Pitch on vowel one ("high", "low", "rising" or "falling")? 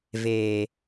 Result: low